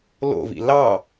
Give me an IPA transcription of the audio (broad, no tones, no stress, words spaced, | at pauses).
lo̰vḭ lɑ